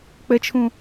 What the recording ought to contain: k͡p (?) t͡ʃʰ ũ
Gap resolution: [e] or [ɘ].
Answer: ɘ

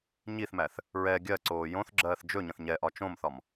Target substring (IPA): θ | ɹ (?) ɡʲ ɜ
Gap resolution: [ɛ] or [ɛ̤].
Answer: ɛ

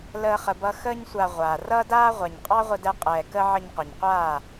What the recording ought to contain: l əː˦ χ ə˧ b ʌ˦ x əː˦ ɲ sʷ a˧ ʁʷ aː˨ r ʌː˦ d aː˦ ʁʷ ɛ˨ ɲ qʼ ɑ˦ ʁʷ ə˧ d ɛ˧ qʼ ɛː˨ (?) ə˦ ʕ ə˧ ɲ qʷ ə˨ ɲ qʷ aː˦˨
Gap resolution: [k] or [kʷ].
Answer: k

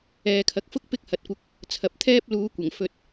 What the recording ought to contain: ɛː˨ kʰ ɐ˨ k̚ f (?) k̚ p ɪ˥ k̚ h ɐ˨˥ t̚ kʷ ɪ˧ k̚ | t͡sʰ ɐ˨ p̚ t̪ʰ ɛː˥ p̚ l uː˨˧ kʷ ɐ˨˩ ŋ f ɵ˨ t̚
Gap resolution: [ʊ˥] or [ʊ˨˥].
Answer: ʊ˥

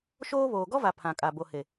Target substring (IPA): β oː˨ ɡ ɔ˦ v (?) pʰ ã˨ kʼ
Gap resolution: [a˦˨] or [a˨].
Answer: a˨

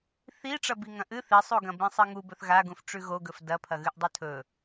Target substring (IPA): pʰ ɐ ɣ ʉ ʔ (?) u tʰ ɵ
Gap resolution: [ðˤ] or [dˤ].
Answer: dˤ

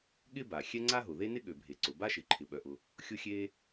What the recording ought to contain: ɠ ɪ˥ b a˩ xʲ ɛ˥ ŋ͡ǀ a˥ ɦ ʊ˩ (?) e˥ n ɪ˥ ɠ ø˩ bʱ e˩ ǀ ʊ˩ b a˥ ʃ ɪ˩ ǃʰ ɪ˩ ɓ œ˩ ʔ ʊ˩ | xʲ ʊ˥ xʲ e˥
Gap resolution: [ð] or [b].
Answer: ð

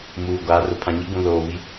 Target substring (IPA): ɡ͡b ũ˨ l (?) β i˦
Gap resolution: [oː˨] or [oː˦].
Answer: oː˨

